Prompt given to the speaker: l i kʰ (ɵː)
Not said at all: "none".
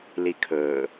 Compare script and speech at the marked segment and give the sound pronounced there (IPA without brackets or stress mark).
ɵː